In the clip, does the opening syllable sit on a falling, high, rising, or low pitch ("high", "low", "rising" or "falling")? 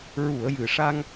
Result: low